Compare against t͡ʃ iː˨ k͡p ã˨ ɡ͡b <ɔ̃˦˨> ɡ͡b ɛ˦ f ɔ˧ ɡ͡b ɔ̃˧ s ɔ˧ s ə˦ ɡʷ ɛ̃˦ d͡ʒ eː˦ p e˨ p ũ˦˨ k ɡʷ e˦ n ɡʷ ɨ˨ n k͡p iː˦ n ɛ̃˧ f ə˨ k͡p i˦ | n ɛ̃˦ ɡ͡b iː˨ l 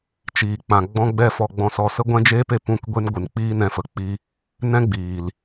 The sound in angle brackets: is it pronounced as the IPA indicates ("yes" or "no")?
no